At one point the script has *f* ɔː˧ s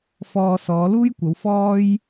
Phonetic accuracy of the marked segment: correct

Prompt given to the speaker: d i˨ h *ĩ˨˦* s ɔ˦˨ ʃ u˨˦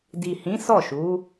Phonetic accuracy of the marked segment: correct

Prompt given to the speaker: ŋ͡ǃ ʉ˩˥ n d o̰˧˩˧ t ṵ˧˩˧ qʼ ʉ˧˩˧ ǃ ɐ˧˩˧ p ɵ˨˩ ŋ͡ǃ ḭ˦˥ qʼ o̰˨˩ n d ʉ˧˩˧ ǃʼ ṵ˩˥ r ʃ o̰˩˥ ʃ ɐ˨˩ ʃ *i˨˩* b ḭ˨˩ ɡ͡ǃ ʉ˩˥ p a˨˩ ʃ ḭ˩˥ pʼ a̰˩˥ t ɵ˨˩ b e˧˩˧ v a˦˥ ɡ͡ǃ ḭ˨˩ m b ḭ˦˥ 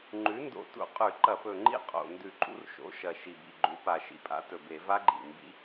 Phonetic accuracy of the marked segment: correct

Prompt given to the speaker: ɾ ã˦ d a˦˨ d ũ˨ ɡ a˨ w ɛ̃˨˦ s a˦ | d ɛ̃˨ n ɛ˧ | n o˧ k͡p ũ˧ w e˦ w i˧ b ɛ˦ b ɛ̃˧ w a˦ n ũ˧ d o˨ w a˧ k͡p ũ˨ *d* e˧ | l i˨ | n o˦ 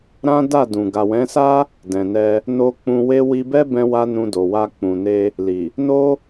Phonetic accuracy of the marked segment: incorrect: n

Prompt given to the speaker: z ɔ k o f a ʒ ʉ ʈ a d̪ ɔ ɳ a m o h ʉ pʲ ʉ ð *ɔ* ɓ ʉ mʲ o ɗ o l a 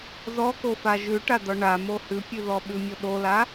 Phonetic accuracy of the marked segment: correct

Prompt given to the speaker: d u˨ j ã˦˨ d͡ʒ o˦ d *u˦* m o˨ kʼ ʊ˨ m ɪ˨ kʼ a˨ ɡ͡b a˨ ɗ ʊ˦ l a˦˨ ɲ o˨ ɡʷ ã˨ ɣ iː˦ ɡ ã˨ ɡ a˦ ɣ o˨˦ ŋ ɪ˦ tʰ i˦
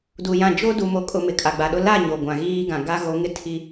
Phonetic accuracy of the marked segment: incorrect: u˨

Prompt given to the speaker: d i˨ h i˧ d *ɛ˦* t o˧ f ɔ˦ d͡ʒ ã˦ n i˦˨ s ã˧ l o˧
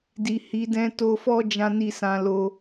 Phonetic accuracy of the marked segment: incorrect: ɛ̃˦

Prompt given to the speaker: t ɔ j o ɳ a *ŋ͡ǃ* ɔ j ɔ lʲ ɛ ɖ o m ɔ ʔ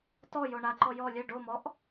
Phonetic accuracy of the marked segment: incorrect: ǃ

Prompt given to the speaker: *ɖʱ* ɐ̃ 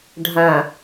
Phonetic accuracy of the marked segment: correct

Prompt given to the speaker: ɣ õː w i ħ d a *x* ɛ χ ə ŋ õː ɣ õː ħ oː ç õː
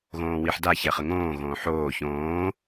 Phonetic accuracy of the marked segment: incorrect: ç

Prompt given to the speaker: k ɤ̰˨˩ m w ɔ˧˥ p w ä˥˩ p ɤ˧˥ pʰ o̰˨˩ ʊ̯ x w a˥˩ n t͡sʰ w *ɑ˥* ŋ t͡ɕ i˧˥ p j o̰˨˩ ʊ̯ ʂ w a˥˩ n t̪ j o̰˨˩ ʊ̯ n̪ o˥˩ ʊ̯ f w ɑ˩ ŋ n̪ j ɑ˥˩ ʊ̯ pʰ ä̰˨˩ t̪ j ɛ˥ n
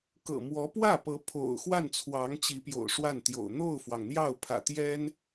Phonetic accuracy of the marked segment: incorrect: ɑ˧˥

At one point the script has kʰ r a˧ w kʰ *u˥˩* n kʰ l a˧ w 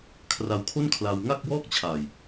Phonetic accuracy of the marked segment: incorrect: o˥˩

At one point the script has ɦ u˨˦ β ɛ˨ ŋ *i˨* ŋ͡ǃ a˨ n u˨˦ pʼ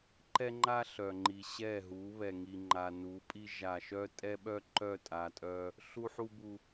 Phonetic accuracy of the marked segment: correct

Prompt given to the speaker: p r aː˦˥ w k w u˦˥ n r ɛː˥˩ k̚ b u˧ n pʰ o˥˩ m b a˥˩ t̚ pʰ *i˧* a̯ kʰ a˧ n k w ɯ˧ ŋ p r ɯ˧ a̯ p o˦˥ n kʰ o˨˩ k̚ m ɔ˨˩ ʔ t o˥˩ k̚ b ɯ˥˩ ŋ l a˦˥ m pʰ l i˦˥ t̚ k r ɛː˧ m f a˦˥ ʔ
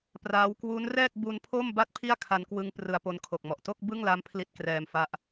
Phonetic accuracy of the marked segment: incorrect: i˥˩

